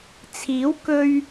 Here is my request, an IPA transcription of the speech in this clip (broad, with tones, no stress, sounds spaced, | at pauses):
t͡sʰ iː˨˥ w k ɵ˧ ɥ